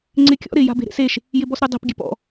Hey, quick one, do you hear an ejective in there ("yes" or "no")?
no